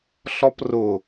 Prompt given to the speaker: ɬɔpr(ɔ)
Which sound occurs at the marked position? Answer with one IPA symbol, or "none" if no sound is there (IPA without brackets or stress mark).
ʊ